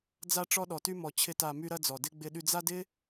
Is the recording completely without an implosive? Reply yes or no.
no